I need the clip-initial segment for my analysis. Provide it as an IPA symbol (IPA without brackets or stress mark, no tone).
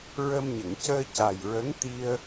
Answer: ɹ